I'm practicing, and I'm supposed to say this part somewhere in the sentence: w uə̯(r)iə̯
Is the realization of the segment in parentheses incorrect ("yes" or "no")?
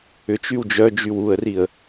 no